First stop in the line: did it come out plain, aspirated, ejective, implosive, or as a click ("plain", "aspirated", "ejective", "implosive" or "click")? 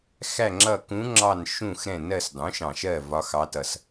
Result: click